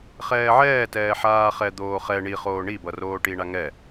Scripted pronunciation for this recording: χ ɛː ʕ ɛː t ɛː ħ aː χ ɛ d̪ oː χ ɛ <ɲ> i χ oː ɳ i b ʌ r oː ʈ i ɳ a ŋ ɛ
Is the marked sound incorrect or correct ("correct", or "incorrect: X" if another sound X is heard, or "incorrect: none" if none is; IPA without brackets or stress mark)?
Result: incorrect: ɳ